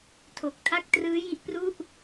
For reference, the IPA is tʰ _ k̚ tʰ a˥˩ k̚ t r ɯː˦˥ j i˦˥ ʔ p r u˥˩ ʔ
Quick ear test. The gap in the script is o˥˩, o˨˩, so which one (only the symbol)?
o˨˩